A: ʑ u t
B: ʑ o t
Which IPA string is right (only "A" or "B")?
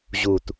A